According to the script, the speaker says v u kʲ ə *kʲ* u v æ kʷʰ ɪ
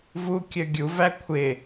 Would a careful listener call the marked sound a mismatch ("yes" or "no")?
yes